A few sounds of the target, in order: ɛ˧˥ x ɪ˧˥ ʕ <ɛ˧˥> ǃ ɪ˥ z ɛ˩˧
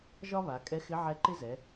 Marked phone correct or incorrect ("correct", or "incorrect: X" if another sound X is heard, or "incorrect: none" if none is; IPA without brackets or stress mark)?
correct